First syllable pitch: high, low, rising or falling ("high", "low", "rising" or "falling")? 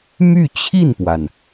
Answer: falling